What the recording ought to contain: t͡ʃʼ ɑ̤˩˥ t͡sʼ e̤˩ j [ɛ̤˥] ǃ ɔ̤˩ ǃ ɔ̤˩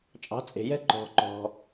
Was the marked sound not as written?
no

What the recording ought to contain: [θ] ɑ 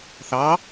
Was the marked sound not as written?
no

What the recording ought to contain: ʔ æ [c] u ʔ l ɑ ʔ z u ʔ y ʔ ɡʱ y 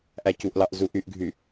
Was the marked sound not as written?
no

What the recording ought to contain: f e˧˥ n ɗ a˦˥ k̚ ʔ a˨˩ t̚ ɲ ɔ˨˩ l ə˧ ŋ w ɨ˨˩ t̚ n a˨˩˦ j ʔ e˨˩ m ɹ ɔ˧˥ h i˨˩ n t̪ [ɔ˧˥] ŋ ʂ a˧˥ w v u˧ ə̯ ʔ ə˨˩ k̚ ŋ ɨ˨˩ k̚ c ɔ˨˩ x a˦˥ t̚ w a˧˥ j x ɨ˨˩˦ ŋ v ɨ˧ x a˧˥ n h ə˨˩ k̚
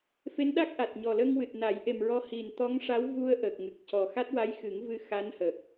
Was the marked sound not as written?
no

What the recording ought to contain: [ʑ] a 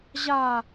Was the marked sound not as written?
no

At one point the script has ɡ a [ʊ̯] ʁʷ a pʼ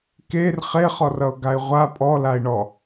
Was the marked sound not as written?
yes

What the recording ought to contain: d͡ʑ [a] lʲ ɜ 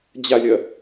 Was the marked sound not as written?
no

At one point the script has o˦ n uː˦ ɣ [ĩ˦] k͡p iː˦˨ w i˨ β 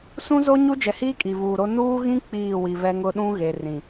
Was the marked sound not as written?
no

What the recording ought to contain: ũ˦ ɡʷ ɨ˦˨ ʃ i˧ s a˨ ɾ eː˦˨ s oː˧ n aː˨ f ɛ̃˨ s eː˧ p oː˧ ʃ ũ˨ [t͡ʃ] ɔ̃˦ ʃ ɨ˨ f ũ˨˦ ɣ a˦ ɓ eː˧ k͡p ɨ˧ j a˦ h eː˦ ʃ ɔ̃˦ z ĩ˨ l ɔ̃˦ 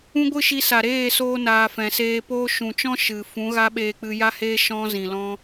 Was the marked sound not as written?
no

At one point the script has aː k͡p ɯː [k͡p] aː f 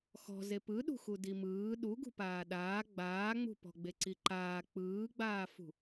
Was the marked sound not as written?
yes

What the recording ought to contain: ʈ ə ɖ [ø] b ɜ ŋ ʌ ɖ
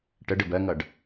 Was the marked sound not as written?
yes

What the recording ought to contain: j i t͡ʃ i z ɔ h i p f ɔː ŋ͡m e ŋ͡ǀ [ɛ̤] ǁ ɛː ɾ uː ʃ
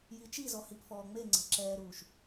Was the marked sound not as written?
no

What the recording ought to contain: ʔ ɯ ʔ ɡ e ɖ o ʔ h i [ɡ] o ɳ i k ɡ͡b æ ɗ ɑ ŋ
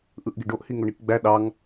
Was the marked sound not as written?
yes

